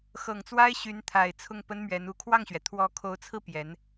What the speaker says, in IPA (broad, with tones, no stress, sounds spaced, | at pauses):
x ɤ˨˩ ŋ t͡s w a˥ ɪ̯ ɕ y˧˥ n t̪ʰ a˨˩ ɪ̯ t͡sʰ ʊ˥˩ ŋ p ə˥ n m ɥ ɛ˧˥ n u˧˥ kʰ w ɑ˥˩ ŋ ɕ ɥ ɛ˩ t̪ʰ w ɔ˧˥ kʰ o˧˥ ʊ̯ t͡sʰ ɹ̩˥˩ p j ɛ˧˥ n